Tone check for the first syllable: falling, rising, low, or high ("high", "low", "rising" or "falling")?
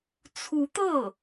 rising